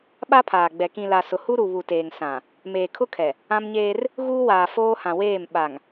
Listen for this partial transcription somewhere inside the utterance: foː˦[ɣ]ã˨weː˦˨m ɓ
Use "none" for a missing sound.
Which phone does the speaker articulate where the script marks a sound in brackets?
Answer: h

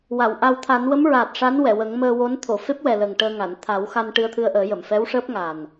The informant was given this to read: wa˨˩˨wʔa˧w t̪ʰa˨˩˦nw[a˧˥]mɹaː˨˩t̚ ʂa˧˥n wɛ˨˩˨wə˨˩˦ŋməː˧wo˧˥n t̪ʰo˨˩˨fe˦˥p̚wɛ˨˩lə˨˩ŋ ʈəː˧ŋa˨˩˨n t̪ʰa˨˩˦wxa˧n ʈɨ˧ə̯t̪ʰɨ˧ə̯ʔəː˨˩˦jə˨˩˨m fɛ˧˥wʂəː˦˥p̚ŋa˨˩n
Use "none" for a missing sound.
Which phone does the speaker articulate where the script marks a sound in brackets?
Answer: ə˧˥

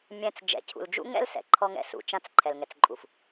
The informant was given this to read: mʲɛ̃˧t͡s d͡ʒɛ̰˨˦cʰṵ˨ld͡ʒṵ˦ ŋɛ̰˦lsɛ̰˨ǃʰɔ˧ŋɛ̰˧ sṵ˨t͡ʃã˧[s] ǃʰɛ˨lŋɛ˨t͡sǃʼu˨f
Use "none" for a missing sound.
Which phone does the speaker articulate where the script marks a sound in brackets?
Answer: t͡s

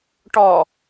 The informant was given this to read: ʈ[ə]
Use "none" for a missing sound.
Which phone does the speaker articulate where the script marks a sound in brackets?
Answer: ɔ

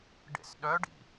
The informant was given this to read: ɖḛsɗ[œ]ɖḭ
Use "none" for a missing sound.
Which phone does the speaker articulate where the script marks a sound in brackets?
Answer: œ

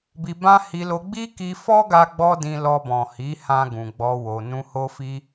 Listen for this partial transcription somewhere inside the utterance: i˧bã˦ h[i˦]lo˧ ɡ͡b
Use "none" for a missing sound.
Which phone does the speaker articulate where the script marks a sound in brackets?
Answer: i˧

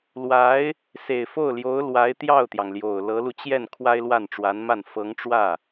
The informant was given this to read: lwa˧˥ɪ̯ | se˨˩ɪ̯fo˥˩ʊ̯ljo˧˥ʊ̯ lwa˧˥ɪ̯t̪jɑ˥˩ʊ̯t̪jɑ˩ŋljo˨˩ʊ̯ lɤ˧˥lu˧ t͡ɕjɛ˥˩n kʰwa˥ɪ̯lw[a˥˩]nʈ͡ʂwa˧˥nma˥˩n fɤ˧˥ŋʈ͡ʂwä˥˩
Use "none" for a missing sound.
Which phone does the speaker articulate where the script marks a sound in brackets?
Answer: a˥˩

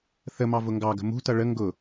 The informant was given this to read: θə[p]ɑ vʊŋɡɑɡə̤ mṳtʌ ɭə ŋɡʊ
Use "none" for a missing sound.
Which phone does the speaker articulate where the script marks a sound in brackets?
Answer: m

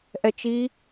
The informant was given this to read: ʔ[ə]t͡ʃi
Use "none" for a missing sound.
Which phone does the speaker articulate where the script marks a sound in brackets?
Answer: ɛ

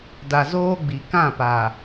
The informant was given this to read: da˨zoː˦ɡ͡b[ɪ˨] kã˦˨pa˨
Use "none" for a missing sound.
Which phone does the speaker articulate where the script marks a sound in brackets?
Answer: i˨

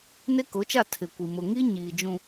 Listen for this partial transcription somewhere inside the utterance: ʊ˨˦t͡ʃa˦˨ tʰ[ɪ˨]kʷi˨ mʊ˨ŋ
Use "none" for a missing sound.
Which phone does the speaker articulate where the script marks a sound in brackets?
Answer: ɪ˨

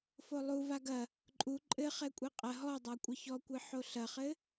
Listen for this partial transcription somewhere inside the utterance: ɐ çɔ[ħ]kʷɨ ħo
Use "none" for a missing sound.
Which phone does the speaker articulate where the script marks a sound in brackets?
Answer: none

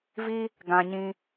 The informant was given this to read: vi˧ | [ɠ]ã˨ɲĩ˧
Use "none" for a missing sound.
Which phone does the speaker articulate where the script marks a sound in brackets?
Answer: ɡ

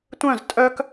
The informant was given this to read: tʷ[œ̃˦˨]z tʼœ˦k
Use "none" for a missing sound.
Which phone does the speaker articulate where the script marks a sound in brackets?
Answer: œ̃˦˨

